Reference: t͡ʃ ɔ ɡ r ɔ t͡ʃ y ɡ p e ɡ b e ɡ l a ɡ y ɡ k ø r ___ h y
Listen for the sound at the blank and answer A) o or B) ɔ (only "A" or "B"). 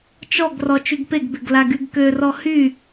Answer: B